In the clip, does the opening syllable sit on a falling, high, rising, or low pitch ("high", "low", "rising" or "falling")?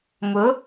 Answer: rising